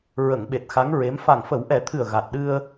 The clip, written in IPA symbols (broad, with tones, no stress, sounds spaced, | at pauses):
ɹ ə˨˩˨ ŋ ɓ e˨˩ t̚ x a˧˥ ŋ ɹ e˧˥ m f a˨˩ ŋ f ə˨˩˦ w ʔ ɛ˨˩˦ t̪ʰ ɨ˨˩ ə̯ ɣ a˨˩ t̚ ɗ ɨ˧ ə̯